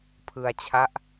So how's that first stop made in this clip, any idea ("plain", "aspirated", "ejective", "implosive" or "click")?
aspirated